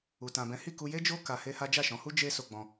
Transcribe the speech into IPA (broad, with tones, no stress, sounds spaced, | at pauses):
u˧ t ã˧ b ɛ̃˦ h i˦˨ k u˧ j e˦ d͡ʒ o˦ k a˧ h e˦ h a˦ d͡ʒ a˦˨ ʃ ɔ̃˨˦ h u˦ d͡ʒ e˦ s o˧ ɡ͡b ɔ̃˧